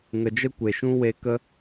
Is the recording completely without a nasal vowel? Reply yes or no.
no